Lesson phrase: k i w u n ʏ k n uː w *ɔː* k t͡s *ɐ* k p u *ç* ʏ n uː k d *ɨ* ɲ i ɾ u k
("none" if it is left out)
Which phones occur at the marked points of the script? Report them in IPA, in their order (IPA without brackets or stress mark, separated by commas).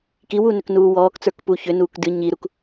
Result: ɔː, ə˞, ç, ɨ